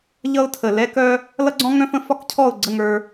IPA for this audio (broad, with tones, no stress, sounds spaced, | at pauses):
ʎ ʌ˦ ʊ̯ tʰ ə˨ l ɛ˦ k œ˦ | l ʌ˦ ɡ͡ǀ ɔ̃˦ ŋ œ̃˦ f ə̃˦ f ɒ˦ k cʰ ɔ˦˨ ʊ̯ ɡ͡ǀ ə˦˨ ŋ ə˞˦